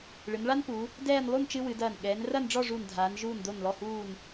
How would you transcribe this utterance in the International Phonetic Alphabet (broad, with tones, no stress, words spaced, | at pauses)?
ɭɨ˩˧nɭa˥npu˩˧ | dɛː˥˧n lˠu˥˧nt͡ʃɨ˧ wɨ˩˧dɐː˧˩n ɠɛː˩˧nrɐ˥˧nɖ͡ʐɔ˥˧ ʐuː˧˩ndʱaː˩˧n ʒuː˧˩ndo˧˩nlɔ˧˩huː˧˩n